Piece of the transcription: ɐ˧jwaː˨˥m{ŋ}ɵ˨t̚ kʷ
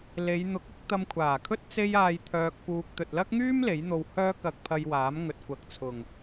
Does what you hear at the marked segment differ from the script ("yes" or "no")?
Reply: no